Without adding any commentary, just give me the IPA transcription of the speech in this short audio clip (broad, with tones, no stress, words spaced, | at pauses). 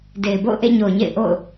de˨ɪ̯bo̰˦˨ʊ̯ʔḛ˦˨ ɲo˨ʊ̯ɲḛ˦˨ɪ̯ʔo̰˦˨ʊ̯